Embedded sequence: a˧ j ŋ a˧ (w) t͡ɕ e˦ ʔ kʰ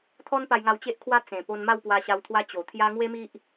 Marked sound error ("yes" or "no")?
no